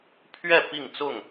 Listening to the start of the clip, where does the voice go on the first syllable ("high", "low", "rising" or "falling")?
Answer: falling